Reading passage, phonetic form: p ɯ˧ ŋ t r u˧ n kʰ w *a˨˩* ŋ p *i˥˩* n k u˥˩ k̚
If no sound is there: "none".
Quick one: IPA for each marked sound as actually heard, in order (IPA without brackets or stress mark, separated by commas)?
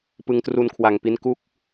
a˨˩, i˧